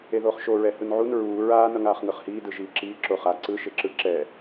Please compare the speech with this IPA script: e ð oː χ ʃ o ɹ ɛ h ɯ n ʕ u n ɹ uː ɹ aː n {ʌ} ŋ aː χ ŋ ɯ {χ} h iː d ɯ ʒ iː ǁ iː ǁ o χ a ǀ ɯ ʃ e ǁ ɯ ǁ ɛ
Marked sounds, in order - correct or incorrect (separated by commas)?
correct, correct